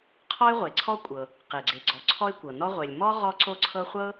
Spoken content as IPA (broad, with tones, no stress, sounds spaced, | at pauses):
qʰ ɔ˥ ɪ̯ ʁʷ e˩ ǀʰ ɔ˥ kʷʼ ɤ˩ | q e˩ ɡ͡ǀ e˩ ɡ͡ǀ ɔ˩ ǀʰ ɔ˥ ɪ̯ kʷ ɤ˩ n ɔ˥ ʁʷ e˩ lʲ m ɔ˥ ʁ ɔ˥ ǀ o˥ ǀʰ ɤ˥ χʷ ɤ˥